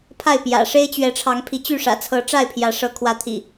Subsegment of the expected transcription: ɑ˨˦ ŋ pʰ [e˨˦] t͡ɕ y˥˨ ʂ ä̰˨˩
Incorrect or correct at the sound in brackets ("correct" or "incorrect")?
incorrect